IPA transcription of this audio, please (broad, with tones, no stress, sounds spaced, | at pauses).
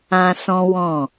ã˦ s ɔ̃˦ w ɔ̃˦˨